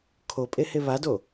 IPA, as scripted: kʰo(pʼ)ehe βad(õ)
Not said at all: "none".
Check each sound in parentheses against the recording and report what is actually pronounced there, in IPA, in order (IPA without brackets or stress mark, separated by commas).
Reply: pʼ, o